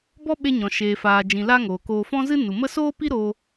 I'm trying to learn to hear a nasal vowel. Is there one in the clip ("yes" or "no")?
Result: yes